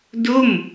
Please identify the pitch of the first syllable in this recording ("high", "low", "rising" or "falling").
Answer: falling